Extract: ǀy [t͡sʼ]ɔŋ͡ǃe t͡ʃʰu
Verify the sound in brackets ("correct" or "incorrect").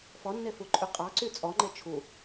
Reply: correct